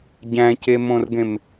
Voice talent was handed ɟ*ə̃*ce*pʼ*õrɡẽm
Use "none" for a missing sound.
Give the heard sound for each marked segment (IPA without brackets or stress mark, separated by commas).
æ̃, m